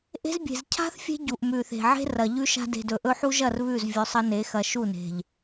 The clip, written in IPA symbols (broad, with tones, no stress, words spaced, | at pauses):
ʔe̤˦zbʲe̤˨z cʰa̤˦θ fʲe̤˦ ɟu˨ʔmʉ˨θe̤˨ ʕe̤˦ rɐ˨ʎʉ˦ʃa̤˦ de̤˨dɵ˨ʔɵ˦ ħu˦ʒɐ˦˨r βʉ˦˨z vʲɵ˨˦sˤɐ˦ne˨˦xɐ˨ ʃu˦˨ne̤˨ʎ